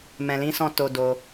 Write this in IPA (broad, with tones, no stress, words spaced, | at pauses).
mɛ̃˨lĩ˧sɔ̃˧ to˧do˧